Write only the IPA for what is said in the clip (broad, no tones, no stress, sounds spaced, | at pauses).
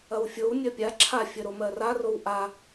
ɐ w fʲ o w nʲ ɜ pʲ a ǁʰ a fʲ ə ɾ o m ɜ r a r o w ʔ a